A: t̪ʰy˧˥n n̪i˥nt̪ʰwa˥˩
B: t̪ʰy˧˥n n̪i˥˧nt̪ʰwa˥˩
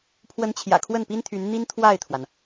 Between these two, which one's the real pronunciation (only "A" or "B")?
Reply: A